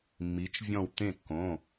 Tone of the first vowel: rising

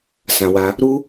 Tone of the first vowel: low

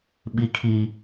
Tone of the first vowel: high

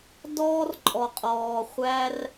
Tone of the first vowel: high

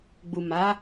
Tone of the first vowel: low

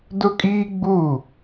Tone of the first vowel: high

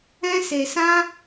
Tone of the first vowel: high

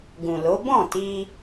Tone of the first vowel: low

